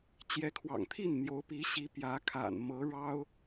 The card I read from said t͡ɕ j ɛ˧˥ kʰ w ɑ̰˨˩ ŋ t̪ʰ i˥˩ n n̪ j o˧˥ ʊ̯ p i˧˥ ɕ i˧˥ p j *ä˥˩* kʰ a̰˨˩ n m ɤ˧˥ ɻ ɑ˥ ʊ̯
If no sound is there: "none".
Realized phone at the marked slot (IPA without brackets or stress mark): ä˧˥